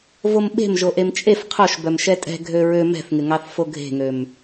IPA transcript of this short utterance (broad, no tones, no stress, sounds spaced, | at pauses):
v o m ɓ e̤ m ʒ o ʔ e m t͡ʃʼ e f qʰ o ʃ b œ m ʃ ɛ tʼ ɛ̤ ɡʱ ø ɹ ø m ɛ̤ θ ŋ ɪ ŋ ɑ θ f o ɡʱ e̤ ŋ ø m